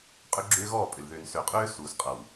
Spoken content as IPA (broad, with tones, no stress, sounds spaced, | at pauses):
qʼ ʏ˦ ɡ͡ǁ ʏː˦ ɣ ɔː˦˨ pʼ ʏ˨ l ð ʏː˨ n s ø˨ qʼ øː˦ s uː˨ s qʼ ʌ˨ w